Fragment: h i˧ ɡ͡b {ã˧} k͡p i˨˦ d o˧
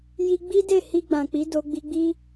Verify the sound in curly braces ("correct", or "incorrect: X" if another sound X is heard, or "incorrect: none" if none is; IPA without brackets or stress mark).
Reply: incorrect: ã˨